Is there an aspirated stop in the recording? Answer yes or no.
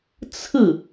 yes